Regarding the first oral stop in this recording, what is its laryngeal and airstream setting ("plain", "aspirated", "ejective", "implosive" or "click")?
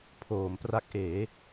aspirated